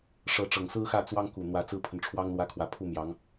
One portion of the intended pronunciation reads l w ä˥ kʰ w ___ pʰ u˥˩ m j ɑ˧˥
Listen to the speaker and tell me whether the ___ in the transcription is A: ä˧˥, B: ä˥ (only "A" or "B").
A